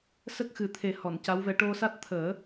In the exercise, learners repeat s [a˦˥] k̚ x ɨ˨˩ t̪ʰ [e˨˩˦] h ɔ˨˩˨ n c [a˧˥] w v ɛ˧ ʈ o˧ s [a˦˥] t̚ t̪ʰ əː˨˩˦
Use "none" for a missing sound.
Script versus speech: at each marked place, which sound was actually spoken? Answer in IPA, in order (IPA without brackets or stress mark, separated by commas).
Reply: ə˦˥, e˨˩˦, a˧˥, a˦˥